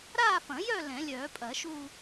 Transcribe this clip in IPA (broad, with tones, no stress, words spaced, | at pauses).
ɾaː˥˧fɐ̃˨˩˦jœ˥˧ lɛ̃˨˩˦lʲœː˨˩˦pʼɐ˨˩˦ʃuː˥˧